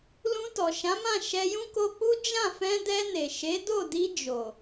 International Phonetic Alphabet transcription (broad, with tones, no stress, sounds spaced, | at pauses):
l ũ˧ t ɔ˨ ʃ ã˨˦ m ã˦˨ ʃ ɛ˧ j ũ˦ k o˧ k͡p u˦ d͡ʒ ã˦˨ f ɛ̃˧ d ɛ˧ n e˨ ʃ e˨˦ d o˦˨ d i˧ d͡ʒ o˨